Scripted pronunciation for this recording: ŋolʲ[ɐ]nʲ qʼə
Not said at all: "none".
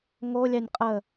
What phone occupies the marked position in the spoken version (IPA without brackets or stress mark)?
ɑ